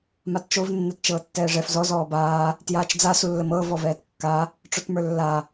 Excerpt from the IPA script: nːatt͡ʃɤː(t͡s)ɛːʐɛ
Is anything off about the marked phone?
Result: yes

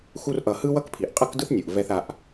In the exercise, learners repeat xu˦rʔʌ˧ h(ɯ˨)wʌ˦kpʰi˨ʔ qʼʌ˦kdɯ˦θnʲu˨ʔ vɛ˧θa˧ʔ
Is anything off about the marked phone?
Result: yes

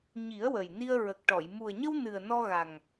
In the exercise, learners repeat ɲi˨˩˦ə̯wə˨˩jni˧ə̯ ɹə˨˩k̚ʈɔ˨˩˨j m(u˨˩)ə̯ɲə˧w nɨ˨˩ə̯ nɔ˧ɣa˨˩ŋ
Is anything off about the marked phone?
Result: no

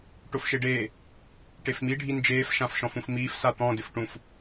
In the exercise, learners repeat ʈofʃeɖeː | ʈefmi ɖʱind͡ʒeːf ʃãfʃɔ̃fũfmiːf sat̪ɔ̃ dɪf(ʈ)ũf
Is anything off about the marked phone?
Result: no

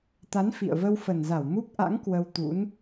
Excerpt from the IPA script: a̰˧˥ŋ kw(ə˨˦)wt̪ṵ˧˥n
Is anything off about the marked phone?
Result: yes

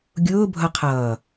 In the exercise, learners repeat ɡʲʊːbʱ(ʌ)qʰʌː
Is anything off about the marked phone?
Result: no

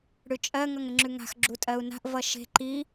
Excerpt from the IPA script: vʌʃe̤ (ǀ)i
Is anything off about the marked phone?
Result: yes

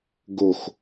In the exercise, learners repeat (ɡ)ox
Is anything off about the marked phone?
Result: no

